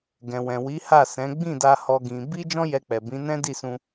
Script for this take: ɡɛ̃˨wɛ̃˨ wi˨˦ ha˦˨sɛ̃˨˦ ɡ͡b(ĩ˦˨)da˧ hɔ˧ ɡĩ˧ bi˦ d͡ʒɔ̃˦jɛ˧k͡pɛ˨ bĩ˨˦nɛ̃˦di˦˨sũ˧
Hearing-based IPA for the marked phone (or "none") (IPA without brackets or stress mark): ĩ˦˨